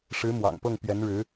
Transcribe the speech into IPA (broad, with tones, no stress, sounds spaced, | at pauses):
ʂ ɻ̩˧˥ m w ɑ̰˨˩ ŋ p ɤ˥˩ ŋ p ɥ ɛ˧˥ n ɻ ɻ̩˧˥